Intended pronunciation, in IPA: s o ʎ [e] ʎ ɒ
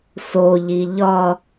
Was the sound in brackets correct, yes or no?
no